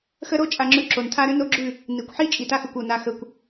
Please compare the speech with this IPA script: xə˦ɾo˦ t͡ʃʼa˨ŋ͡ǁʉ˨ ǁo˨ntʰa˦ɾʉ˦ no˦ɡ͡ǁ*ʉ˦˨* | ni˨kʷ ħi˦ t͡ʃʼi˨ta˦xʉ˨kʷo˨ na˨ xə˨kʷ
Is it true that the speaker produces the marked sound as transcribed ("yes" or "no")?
yes